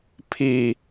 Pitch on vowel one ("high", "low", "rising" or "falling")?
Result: low